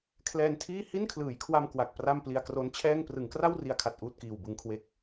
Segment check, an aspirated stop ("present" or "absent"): present